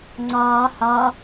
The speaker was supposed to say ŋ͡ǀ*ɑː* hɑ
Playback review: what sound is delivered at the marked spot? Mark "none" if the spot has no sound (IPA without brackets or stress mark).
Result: ɑː